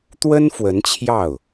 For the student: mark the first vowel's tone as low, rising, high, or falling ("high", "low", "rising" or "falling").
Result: high